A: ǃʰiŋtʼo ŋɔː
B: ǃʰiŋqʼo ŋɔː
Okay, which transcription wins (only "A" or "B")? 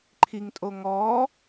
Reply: A